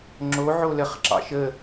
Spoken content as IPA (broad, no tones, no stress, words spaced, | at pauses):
ŋ͡ǁoʕo ləχǁɑ̰ ʃə